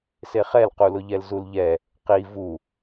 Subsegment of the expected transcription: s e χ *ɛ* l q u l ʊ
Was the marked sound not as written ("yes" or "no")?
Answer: no